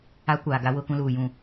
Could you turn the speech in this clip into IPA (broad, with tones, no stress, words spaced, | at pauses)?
a˦kʷaː˨ ɡa˦wʊ˦ kũ˦luː˨jũ˦˨